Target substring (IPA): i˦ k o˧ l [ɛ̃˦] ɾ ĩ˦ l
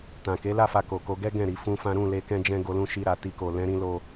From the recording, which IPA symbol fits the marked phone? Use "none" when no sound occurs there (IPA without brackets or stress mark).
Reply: ɛ̃˦